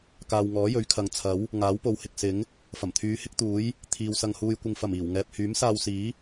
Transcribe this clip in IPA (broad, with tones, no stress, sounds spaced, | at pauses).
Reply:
k aː˨ w ŋ ɔː˨˥ j ɵ˨˥ ɥ kʰ ɐ˨˧ ŋ t͡sʰ ɐ˨˥ w | ŋ aː˨˥ w p o˨ w h ɪ˨ k̚ s ɪ˨˥ ŋ | f ɐ˨˩ m t̪ʰ yː˨˧ h ɪ˥ k̚ t̪ uː˨˥ j | t̪ʰ iː˨ w s ɐ˧ ŋ h uː˧ j kʷ ɪ˧ ŋ f ɐ˨˩ m iː˨˩ w ŋ ɛː˨ p̚ h yː˨˥ m s aː˧ w s iː˨˥